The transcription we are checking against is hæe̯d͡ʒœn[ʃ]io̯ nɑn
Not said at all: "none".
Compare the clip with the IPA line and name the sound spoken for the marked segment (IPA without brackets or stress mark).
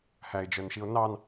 ʃ